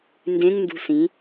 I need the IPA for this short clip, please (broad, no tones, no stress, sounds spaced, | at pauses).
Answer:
n d ẽ ŋ n d ṳ s ĩ